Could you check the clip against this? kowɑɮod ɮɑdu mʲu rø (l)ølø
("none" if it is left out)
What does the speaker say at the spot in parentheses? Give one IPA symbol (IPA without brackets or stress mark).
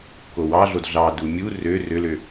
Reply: r